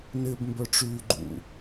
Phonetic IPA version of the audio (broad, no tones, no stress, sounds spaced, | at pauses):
n ɪː b m b œ ʈ͡ʂ yː ɡ͡ǃ ṵ